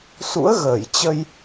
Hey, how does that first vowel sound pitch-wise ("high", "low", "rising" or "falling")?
rising